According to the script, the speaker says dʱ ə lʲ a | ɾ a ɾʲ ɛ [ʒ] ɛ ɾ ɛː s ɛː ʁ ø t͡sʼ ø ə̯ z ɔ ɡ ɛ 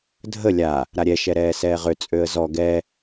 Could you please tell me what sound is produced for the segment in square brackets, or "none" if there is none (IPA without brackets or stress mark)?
ʃ